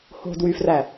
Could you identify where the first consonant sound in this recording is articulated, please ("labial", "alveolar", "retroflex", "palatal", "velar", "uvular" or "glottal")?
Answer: glottal